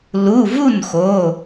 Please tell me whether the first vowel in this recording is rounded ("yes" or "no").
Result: yes